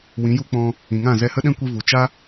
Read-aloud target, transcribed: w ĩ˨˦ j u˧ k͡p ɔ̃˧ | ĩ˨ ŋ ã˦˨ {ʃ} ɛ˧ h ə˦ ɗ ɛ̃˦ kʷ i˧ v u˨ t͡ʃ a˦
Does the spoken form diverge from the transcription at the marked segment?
yes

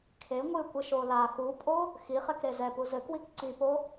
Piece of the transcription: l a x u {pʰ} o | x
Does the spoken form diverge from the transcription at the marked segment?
yes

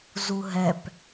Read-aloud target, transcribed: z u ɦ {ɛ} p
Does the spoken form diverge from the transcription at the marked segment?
no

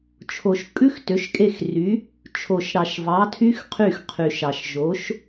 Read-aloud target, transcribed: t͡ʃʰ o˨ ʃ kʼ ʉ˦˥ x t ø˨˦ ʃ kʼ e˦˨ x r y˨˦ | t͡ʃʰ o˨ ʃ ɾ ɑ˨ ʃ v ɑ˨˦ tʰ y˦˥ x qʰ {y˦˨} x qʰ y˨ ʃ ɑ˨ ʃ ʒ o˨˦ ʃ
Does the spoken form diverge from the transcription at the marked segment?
no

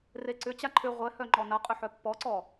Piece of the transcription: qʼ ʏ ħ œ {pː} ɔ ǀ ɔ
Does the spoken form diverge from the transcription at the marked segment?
no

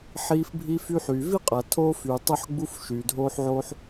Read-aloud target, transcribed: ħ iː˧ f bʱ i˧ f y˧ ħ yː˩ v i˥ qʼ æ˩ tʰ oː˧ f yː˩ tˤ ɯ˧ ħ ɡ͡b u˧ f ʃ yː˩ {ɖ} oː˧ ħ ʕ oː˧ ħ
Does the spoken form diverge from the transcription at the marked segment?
yes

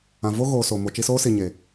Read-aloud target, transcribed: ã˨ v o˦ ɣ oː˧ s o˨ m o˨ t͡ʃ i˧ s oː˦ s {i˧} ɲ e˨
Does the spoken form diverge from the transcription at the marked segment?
yes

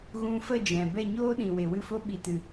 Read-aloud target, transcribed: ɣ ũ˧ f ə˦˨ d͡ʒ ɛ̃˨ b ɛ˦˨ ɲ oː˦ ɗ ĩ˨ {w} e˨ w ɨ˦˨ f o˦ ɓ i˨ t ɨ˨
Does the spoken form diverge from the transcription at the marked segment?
no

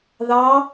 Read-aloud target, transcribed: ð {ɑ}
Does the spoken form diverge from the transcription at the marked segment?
no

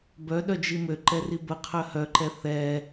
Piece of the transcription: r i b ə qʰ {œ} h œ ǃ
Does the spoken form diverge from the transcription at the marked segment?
no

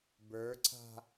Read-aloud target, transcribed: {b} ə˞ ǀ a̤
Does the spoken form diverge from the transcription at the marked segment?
no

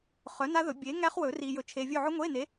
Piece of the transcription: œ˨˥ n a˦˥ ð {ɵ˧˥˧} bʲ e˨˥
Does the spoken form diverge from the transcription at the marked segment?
yes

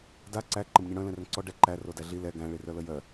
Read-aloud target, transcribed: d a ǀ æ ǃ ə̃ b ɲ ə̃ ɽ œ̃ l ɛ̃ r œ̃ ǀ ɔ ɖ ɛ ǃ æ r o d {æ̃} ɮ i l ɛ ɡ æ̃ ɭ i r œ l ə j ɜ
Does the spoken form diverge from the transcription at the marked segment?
yes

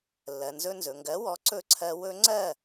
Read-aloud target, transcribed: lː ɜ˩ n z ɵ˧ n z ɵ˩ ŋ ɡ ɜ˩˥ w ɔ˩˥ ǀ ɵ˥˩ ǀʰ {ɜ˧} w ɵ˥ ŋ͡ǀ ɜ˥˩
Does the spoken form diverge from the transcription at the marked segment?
no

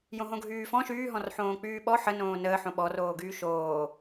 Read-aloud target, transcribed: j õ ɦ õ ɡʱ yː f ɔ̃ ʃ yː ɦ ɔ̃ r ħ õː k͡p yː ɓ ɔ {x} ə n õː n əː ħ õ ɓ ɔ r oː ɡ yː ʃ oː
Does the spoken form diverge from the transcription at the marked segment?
yes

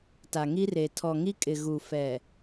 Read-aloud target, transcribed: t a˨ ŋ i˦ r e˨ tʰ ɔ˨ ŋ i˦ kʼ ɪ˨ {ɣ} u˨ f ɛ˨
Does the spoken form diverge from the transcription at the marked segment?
no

